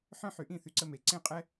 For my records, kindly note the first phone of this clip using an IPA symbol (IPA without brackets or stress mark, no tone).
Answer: ħ